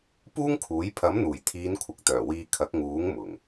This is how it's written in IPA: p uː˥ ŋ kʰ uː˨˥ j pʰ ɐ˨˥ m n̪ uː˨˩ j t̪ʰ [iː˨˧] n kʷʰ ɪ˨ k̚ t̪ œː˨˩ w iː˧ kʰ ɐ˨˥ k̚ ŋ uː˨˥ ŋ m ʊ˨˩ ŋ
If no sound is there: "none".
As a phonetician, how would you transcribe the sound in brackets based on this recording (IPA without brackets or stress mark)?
iː˨˧